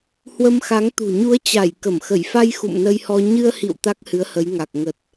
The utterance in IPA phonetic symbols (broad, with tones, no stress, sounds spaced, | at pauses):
h w ə˧ m x a˨˦ ŋ t̪ ṳ˨˩ ɲ u˨˦ ə̯ t͡ɕ a˧˩ j k ə˧˩ m x ə˧˩ j f a˧ j x ṵ˧˨ m n ə˧ j h ɔ˧ ɲ ɨ˧ ə̯ h ḭ˧˨ w t̪ a˦˥ k̚ h ɨ˨˦ ə̯ h ə˨˦ j ŋ a˨˩ k̚ ŋ ə˨˩ t̚